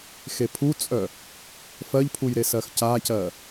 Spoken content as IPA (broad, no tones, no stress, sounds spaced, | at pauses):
x e pʰ u t͡sʼ œ | f ɜ ʎ pʰ u j ɾ e s ɜ x c a c ɜ